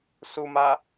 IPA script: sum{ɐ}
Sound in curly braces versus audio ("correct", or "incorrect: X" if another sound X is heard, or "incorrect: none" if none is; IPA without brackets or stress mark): incorrect: a